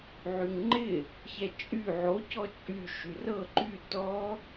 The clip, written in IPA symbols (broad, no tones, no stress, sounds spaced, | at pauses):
ʕ y ŋ ŋ͡ǃ ɪ | ç ɛ t͡ʃʼ y ʕ o c ɔ t͡ʃʼ y ʃ y r ɤ ǃ y t ɔ